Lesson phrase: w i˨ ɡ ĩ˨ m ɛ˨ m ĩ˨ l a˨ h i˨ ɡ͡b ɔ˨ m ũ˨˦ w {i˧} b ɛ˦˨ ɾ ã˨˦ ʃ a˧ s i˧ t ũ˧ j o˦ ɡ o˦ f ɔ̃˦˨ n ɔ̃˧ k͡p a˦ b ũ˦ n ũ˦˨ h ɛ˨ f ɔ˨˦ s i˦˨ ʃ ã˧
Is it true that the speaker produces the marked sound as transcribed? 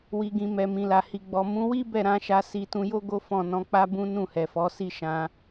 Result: no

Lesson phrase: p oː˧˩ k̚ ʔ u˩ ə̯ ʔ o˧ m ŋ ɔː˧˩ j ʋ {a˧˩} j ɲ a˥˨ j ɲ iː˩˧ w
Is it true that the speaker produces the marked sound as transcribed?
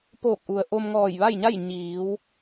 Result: no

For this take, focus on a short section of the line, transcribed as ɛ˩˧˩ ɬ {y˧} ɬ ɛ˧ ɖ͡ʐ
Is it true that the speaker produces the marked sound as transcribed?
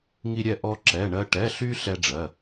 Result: yes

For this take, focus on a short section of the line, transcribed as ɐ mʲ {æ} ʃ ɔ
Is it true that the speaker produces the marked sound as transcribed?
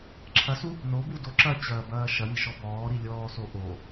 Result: no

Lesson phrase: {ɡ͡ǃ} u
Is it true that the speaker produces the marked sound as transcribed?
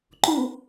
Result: no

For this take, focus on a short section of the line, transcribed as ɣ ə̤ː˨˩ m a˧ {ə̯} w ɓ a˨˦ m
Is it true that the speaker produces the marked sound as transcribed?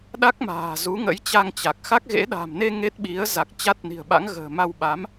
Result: no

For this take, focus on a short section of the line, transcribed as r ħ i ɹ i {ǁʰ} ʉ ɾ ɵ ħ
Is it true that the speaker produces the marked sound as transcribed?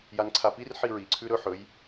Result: no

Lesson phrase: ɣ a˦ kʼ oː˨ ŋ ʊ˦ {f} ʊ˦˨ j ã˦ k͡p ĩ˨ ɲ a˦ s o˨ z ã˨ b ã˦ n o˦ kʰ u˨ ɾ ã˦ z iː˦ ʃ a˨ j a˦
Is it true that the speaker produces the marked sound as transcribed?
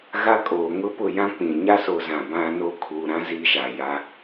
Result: no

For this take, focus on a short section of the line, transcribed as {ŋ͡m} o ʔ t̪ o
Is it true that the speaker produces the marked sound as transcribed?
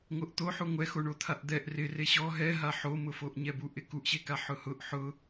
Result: no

